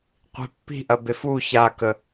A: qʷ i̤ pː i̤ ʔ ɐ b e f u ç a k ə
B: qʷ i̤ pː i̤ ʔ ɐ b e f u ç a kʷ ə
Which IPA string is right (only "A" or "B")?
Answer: A